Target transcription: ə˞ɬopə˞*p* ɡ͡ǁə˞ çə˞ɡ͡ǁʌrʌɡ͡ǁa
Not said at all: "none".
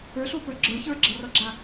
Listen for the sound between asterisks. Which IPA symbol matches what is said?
none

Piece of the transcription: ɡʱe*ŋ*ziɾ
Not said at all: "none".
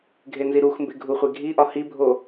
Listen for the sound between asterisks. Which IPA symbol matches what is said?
n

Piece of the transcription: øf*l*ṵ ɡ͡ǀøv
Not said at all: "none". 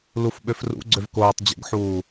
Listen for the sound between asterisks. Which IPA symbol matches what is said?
r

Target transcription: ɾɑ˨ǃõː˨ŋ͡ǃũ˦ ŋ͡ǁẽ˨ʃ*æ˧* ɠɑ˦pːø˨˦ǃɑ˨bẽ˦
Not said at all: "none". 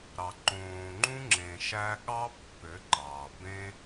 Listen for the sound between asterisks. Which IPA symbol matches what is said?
æ˧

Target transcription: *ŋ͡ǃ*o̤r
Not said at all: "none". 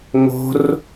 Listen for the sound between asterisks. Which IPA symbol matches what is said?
ŋ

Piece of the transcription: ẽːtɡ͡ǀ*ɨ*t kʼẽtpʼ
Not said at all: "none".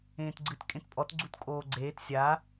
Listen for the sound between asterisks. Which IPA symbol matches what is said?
ɨ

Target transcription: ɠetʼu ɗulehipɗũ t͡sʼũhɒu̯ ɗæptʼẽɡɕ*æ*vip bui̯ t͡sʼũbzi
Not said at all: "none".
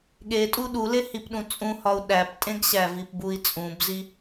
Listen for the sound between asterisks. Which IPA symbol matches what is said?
æ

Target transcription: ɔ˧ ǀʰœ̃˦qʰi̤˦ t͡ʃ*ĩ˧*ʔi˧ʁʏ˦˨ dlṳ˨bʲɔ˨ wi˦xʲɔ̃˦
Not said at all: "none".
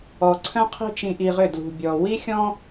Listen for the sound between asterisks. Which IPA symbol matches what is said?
ĩ˧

